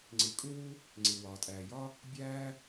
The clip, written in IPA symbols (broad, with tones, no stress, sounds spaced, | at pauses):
ŋ͡ǀ i˩ kʼ u˥ w u˥ | ŋ͡ǀ i˩ w ɒː˩ tʼ æː˩ j ɒ˥ | bʲ æː˥